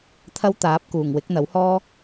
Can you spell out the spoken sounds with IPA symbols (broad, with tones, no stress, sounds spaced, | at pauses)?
t̪ʰ ɐ˥ w t̪ aː˨˥ p̚ k uː˨˩ ŋ w ɪ˨˥ k̚ n̪ ɐ˨˥ w h ɔː˥